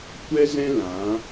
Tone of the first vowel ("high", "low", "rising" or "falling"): high